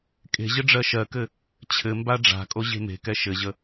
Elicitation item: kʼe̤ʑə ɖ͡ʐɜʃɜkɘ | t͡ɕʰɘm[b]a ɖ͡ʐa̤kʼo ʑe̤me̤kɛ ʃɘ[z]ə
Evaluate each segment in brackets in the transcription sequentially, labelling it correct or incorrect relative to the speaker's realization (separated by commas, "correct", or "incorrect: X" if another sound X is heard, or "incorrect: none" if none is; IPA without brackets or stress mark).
correct, incorrect: ʑ